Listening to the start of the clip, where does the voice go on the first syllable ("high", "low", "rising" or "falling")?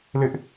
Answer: high